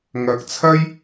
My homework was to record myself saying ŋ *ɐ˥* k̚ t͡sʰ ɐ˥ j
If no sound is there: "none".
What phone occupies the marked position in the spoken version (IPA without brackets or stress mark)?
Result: ɐ˧